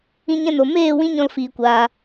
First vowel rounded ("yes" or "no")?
no